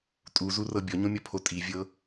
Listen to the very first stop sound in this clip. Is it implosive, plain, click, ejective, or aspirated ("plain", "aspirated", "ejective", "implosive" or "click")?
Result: ejective